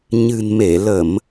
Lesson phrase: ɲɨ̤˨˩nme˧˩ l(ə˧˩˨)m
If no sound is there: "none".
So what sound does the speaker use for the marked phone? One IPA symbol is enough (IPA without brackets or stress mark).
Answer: ə˧˩˨